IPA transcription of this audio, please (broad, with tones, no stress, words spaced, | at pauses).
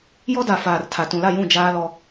jɔ˦da˨ faː˨r tʰa˨ tũ˨la˦˨jũ˦˨ d͡ʒaː˦ lɔ˦